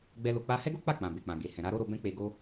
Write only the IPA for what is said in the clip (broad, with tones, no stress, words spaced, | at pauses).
ɡ͡bɛ˧ lo˧k͡pa˦ hɛ˦ɡo˦k͡pa˦˨ k͡pã˨be˨k͡pã˨ ɡe˨hɛ̃˨ ɾa˨˦ɾo˦ɾo˧ bɛ̃˦k͡pe˧ɡo˦